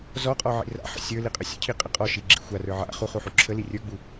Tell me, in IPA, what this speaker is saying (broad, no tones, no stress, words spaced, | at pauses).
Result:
zɔqʼɔʕḭ ra̰ħə̰ sʲə˞liqʼə sʲə̰cʰiqʼə qʼɔʃiɡ͡ǁḭ xʷarə˞ ʕa̰ χuχuħu ǁʰəli rʲə˞ɡ͡bu